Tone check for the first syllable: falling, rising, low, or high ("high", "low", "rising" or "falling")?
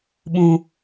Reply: low